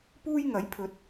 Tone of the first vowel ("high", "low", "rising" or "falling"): high